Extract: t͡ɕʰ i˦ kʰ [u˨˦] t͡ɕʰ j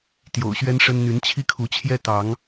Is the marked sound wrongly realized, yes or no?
no